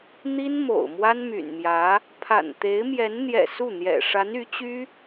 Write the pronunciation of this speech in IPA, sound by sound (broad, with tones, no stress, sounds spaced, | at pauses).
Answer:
n̪ i˥ n m o̰˨˩ ʊ̯ m w a˥ n m y̰˨˩ n m j ä˧˥ | pʰ a̰˨˩ n t̪ e˧˥ ɪ̯ m j ɛ˧˥ n n̪ j ɛ̰˨˩ s u˥˩ n̪ j ɛ̰˨˩ ʂ a˧˥ n y˧˥ t͡ɕ y˥